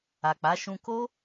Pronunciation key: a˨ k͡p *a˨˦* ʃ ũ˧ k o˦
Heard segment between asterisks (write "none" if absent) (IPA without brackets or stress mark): a˨˦